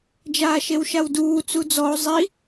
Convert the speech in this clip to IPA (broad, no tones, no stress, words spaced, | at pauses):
d͡ʒaːʃewʃawduː t͡sud͡zɔo̯ zˤi